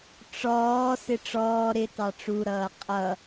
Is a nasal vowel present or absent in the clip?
absent